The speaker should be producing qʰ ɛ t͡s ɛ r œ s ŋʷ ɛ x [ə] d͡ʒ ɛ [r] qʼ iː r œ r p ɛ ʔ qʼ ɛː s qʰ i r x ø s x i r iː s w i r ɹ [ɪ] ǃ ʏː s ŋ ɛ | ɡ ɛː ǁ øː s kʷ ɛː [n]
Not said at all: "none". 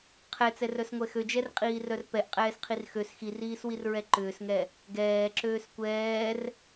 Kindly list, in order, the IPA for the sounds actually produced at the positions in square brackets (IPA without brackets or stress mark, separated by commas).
ø, r, ɛ, r